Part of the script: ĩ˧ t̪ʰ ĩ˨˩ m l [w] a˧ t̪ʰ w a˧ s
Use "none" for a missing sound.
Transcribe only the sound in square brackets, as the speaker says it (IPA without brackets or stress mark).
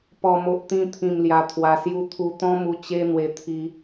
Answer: j